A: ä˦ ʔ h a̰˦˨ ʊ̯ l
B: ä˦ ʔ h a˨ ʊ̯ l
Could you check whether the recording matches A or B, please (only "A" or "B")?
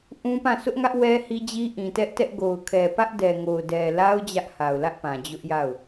B